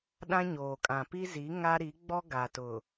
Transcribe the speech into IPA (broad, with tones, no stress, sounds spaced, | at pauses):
ɗ ã˦ ɲ oː˨ kʼ ã˨ p i˦ z i˨˦ ŋ a˦ ɾ i˨˦ ɡ͡b ɔ˦ ɡ a˨ t ʊ˨